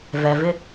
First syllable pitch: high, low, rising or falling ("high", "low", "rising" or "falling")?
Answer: low